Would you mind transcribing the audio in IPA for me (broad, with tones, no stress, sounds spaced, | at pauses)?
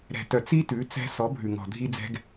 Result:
ɾ ɛ̤˨ t œ˨ t͡s i˦ t ʉ˨˦ t͡s ɛ̤˧ s ɔ˨˦ bʱ ʉ˨ ŋ ɔ̤˨ dʱ i˧ d͡z ɛ̤˧ ɡ